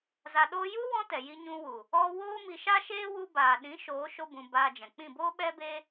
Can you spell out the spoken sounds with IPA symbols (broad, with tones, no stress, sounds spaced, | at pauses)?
z a˧ ɗ oː˦ j u˦ w ɔ̃˦ t ɛ˨ j i˧ ɲ ũ˧ w u˨ | ɔ˧ w oː˦ m i˧ ʃ a˦ ʃ eː˦ w u˧ b aː˨ ɗ ĩ˨˦ ʃ oː˨˦ ʃ o˦ b ũ˧ b aː˧ d͡ʒ ɛ̃˨ k͡p ĩ˦˨ b oː˦ ɓ ɛ˦ b e˦